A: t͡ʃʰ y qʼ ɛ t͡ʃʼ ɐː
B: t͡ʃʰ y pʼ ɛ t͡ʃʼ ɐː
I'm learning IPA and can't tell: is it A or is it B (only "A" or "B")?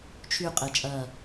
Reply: A